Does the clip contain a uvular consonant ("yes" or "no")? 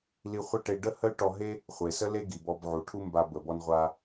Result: yes